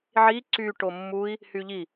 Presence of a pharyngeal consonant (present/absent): present